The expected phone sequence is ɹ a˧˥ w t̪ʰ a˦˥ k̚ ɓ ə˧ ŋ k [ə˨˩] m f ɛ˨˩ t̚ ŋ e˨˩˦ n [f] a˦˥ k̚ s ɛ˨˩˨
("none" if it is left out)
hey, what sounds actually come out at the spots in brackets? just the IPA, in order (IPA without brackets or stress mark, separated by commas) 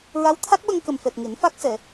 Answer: ə˨˩, f